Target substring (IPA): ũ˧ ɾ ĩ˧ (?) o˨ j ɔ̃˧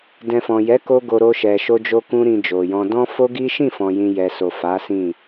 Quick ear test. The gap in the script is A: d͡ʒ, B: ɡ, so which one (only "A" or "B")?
A